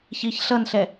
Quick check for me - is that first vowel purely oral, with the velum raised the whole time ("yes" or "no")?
yes